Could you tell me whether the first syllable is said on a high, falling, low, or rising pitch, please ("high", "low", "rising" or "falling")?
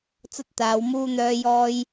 high